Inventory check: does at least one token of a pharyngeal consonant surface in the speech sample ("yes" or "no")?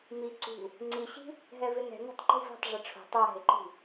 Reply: no